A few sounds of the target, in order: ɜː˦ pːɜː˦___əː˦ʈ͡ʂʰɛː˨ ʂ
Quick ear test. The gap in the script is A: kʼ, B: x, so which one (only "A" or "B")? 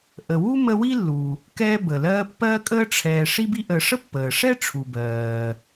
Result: A